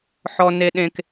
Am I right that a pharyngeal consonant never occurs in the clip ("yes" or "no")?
no